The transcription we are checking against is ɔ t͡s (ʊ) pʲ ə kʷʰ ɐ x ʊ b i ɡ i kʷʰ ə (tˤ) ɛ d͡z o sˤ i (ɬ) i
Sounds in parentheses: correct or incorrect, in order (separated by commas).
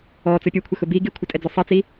correct, incorrect, incorrect